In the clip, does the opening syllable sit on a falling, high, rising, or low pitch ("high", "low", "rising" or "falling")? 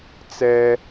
high